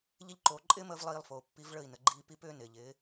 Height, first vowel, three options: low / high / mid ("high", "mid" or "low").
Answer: high